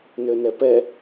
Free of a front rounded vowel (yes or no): no